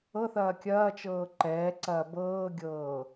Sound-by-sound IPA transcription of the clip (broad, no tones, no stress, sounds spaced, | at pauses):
ɤ θ ɐː kʲ ɐː t͡ʃ ɤː ǃ ɛː ǀ ɐː b ɤː ɡʲ ɤː